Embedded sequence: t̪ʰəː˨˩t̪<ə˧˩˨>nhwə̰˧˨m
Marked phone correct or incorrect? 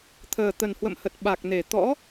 incorrect: ə˨˩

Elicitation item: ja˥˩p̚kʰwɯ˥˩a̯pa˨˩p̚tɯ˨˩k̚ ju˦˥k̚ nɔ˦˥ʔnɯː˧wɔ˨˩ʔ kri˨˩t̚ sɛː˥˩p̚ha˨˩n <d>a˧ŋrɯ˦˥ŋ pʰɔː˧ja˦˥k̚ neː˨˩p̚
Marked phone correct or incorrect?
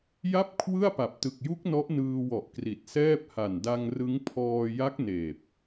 correct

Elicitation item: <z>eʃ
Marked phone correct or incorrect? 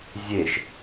incorrect: zʲ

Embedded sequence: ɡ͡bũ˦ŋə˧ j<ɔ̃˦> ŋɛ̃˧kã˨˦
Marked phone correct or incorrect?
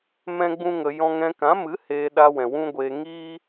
correct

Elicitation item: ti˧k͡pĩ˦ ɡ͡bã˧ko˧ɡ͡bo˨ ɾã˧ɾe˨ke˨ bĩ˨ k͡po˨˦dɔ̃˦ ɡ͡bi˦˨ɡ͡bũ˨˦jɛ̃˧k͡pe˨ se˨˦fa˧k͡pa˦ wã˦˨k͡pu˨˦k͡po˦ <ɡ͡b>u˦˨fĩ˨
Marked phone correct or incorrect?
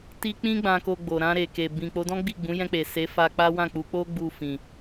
correct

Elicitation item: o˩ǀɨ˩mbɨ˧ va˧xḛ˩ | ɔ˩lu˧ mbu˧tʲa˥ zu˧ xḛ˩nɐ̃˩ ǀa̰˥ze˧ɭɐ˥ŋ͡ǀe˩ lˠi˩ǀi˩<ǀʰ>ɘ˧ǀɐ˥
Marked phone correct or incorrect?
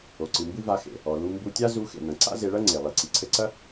correct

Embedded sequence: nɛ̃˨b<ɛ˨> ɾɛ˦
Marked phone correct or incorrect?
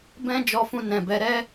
incorrect: ɛ˨˦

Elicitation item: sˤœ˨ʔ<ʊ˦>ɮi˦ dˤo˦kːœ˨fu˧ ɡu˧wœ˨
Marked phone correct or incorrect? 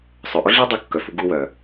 correct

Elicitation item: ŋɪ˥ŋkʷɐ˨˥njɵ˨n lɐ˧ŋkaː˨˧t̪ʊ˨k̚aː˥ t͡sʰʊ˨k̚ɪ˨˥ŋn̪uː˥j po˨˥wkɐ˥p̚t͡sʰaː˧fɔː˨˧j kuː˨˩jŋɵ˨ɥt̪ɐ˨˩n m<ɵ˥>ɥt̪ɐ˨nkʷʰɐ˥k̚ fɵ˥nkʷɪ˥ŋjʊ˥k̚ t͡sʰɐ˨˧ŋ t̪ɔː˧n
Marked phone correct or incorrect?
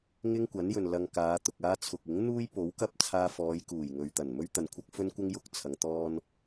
correct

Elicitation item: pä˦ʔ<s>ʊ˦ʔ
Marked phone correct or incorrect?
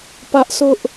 correct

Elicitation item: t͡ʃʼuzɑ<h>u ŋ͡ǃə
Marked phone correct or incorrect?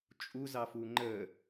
incorrect: f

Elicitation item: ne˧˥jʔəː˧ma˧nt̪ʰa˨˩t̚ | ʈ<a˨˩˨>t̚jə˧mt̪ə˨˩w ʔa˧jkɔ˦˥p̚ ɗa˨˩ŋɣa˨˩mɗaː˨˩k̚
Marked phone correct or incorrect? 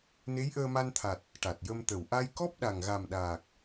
incorrect: a˨˩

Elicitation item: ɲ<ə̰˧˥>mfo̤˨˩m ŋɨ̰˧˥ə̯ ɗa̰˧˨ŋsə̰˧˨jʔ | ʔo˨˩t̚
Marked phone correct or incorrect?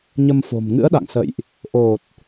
incorrect: ə˧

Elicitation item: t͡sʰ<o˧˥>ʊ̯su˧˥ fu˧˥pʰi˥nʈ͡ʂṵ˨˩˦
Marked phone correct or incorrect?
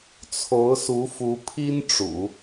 correct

